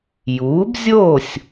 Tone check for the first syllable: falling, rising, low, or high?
rising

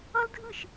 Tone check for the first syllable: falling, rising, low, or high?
high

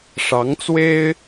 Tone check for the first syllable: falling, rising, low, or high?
rising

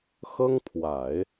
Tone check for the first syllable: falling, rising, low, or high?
high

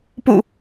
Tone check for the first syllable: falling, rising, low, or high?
low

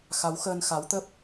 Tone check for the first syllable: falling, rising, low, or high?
rising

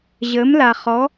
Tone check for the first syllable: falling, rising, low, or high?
rising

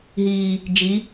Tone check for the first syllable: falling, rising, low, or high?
low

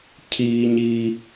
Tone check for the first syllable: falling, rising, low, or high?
high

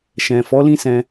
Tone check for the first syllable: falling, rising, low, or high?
low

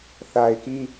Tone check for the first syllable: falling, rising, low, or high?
low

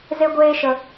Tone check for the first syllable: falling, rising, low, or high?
high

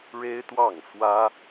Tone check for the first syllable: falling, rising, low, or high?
high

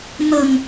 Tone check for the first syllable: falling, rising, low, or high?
low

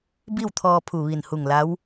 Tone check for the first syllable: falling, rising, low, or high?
falling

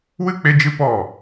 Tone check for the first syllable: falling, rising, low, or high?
high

